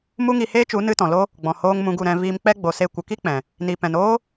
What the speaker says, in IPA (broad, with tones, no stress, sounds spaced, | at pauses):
m u˦ ŋ i˧ h eː˦ t͡ʃ u˨˦ n ɨ˧ t ɔ̃˨ l o˧ | ɡ͡b ɔ̃˨ h oː˧ ŋ m ũ˧ ɡ u˦˨ ɾ ɛ̃˧ v iː˧ m k͡p ɛ˦ ɡ͡b o˧ s e˦ kʷ ə˧ k i˦ k͡p ɛ̃˨ | n i˨ p ɛ̃˨ n oː˦